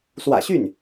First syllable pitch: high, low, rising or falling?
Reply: low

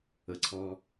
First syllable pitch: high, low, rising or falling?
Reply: rising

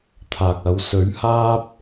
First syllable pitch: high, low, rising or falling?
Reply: low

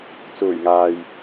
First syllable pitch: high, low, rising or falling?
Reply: low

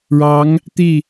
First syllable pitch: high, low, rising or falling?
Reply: rising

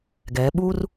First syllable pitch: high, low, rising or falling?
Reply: rising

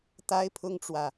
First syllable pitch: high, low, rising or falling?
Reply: high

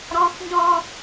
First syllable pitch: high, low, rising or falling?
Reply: high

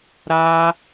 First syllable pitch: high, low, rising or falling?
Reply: high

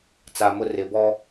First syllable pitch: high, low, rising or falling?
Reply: low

